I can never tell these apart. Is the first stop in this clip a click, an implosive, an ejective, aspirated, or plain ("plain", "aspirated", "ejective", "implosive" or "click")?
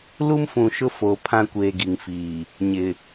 aspirated